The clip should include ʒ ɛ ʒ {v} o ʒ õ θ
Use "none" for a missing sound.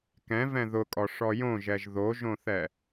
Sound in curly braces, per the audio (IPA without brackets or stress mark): ð